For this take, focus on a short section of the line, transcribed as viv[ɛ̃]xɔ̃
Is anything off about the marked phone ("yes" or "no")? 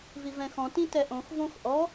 no